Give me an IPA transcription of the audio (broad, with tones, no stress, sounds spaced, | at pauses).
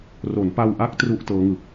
r o˩˦ n p a˧ w ʔ a˦˥ k̚ t r u˥˩ ʔ t ɤː˦˥ ŋ ɯ˨˩ k̚